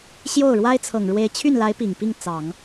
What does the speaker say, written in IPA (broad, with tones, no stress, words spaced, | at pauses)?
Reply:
ɕjo˥˩ʊ̯ɻwa˥ɪ̯ t͡sʰɤ˨˩ŋɻwe˧˥ɪ̯ t͡ɕʰy˥˩nla˧˥ɪ̯ pi˨˩ŋpi˥˩ŋ t͡sɑ˨˩˦ŋ